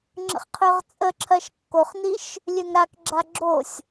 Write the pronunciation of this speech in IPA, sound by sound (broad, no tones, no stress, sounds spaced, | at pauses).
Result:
ŋ͡ǁ ə̰ χ qʰ ø ʁ t͡sʼ ə ǁʰ ɜ ʃ kː o χ n i ʃ | lʲ ø ŋ ɾ a k ɡ͡ǁ a ɡ͡ǁ o sʲ